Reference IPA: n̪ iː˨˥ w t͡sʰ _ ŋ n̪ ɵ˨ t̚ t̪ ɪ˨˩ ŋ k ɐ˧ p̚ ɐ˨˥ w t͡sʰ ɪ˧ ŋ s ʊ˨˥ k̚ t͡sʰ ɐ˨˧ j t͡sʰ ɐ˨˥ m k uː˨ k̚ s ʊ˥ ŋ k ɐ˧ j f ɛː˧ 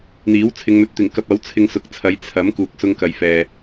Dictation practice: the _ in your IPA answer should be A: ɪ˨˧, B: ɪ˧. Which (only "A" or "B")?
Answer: A